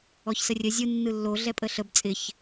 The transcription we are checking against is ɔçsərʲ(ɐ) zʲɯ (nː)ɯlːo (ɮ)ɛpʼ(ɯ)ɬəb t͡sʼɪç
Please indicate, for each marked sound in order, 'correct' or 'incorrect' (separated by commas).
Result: incorrect, correct, correct, incorrect